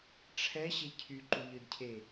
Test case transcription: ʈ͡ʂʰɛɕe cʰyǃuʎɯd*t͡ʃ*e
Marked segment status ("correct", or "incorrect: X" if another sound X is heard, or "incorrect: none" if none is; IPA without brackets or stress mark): incorrect: cʰ